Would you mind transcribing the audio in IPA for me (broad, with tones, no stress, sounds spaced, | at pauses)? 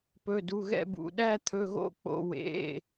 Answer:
p ɵ˩˧˩ d u˩˧˩ ɣ ɛ̰˦˨ b ṵ˩˧˩ ɗ æ˦˨ t̪ʰ ɵ˩˧˩ ɣ o̰˦˨ k͡p o̰˩˧˩ w ḛ˩˧˩